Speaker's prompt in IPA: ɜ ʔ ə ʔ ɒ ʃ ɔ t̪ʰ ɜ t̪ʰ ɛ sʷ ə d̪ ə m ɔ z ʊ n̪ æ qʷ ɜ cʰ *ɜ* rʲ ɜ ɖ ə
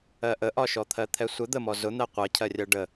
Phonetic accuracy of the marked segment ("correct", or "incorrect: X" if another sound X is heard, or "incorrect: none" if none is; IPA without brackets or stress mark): correct